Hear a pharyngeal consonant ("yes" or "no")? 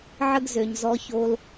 yes